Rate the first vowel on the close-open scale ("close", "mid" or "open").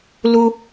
close